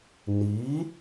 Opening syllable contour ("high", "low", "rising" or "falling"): rising